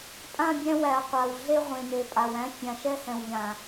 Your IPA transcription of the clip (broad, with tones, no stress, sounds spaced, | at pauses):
pʼ ã˦˨ bʲ æ̃˦ w æ˨ ɐ̯ qʷ a˨ w ɮ e˦ ʁʷ ẽ˨ n e˨ pʼ a˨ w æ̃˦ fʲ ã˨ ʃ ɛ˦ h ɛ̃˨ w ʎ ã˨